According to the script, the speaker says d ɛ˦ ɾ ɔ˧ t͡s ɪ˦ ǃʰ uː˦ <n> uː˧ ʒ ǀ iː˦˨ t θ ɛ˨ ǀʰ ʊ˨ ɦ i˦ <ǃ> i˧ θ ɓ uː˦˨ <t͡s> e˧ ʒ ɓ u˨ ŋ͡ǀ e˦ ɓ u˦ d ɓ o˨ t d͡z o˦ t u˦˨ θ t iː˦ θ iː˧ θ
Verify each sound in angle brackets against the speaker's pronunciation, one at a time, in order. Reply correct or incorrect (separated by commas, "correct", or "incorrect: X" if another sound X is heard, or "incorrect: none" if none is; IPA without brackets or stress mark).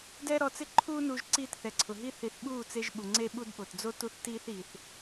correct, incorrect: θ, correct